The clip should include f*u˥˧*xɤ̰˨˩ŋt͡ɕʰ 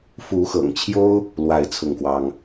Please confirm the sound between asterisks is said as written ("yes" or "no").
no